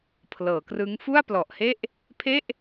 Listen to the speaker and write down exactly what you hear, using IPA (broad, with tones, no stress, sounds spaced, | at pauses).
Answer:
pʰ l ɤː˩˦ k r ɯ˦˥ ŋ f u˥˩ a̯ p l ɔ˨˩ ʔ h e˥˩ ʔ | pʰ e˥˩ ʔ